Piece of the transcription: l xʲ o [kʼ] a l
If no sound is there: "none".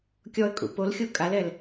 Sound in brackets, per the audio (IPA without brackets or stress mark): kʼ